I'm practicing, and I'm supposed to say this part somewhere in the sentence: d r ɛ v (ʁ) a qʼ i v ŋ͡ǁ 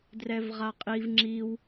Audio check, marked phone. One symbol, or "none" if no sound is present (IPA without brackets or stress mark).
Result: ʁ